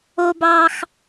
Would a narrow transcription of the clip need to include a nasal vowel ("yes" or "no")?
no